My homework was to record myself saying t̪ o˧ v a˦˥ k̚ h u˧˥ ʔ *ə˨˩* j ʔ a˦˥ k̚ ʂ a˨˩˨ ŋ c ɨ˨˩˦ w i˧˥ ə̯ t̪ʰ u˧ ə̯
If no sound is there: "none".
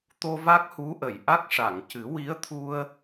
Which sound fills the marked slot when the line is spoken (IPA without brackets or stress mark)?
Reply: ə˨˩˨